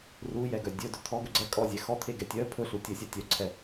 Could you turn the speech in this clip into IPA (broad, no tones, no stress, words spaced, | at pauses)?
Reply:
rujɛɡœ dʲɵdɵ t̪ʰɔɡɵ ɡ͡ǀɛkʼɔzʲɛ xɔt̪ʰeɡɛ tʲœ pʰɵɬu tʲɵsʲa tʲœǀʰɛ